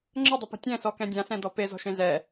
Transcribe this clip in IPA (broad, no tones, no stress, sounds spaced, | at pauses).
ŋ͡ǁ ə dˤ ə p ə̤ tʲ ɛ̃ s ɔ k ɛ̃ dʲ ã s ɛ̃ d ɔ p e z ɔ̤ ʃ ẽ z ɛ